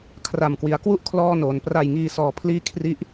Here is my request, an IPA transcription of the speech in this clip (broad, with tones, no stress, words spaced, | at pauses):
kʰra˨˩mkwi˩˦a̯kwu˥˩ʔ kʰlɔː˥˩noː˩˦n pra˨˩jŋiː˨˩sɔː˩˦pʰliː˧ kʰri˦˥ʔ